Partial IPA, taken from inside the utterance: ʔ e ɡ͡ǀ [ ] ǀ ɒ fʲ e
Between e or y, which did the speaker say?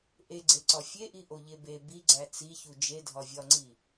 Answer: e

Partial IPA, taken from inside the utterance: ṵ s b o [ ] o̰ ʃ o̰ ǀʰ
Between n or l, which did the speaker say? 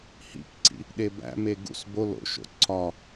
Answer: l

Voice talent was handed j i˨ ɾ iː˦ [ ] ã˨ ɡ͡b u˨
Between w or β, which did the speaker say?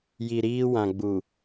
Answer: w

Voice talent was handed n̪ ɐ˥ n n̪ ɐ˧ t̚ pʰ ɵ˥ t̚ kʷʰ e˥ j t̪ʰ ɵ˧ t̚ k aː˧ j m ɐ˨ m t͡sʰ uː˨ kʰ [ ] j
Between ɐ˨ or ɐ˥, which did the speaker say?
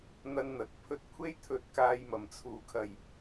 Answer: ɐ˨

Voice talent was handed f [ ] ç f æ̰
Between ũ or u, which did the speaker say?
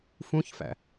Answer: ũ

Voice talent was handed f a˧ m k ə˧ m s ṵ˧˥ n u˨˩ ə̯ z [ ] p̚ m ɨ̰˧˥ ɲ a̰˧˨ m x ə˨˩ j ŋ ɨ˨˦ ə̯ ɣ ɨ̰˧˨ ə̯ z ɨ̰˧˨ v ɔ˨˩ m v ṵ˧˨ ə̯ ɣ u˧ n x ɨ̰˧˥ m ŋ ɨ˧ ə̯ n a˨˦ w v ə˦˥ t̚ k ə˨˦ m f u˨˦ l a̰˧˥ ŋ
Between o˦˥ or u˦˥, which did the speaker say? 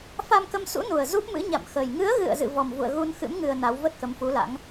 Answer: u˦˥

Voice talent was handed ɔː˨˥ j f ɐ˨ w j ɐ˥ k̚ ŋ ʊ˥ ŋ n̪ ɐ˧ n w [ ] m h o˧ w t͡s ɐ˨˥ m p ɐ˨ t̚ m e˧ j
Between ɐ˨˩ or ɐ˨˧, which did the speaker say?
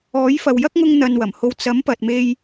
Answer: ɐ˨˩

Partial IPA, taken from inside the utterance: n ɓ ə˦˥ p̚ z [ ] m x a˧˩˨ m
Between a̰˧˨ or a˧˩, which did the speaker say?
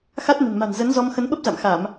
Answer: a̰˧˨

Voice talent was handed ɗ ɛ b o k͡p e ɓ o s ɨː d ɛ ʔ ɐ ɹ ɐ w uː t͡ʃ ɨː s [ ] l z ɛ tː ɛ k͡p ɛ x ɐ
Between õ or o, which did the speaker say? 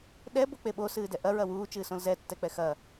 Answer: õ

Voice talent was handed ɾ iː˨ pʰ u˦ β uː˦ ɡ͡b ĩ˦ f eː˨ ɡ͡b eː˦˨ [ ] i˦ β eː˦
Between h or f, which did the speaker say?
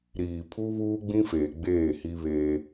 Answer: h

